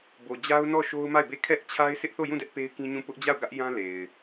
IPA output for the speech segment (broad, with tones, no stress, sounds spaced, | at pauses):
b o˨ d͡ʑ a˦ ʊ̯ n ɔ˦˨ ʃ o˦ ʊ̯ m a˦˨ ɪ̯ b e˦˨ kʰ ɛ˦ ʔ t͡ɕʰ a˦ ɪ̯ s ɪ˦ ʔ θ o˦˨ j ũ˦˨ d ɛ˦ ʔ p e˦ ɪ̯ k ĩ˦ ɲ ũ˦˨ p ʊ˦ ʔ d͡ʑ a˦˨ ʊ̯ ɡ ä˦ ʔ j ã˦ l e˨ ɪ̯